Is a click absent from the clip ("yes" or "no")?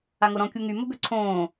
no